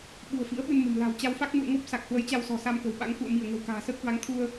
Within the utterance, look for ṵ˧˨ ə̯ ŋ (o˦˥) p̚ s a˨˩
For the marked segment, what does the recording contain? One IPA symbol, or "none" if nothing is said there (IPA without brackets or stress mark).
o˦˥